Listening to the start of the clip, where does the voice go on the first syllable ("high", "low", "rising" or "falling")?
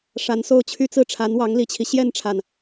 rising